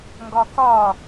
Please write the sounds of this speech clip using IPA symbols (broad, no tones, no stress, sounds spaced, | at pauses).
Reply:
ŋ ɡ ɒ k ɒ